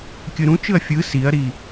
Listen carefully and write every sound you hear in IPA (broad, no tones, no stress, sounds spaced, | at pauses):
kʲ ɯ ɾ ũ t͡ʃ ɯ ɐ̯ fʲ ɯ s i ɐ̯ ɾ i